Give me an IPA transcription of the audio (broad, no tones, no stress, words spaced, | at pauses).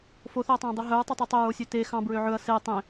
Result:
foθœɐ̯tˤɑ̃ːdˤy ɦœɹtˤɛtˤu tˤœɹosʲø te xɑ̃bɹø ʕɵɐ̯ se tˤẽ